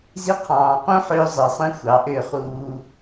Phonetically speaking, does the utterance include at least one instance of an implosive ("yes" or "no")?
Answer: no